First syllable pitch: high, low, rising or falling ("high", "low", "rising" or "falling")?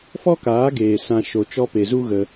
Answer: high